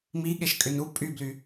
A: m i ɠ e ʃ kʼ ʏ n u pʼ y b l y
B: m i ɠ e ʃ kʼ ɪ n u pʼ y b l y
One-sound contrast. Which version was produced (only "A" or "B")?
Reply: A